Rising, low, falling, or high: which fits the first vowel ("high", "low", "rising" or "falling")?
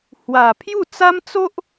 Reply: low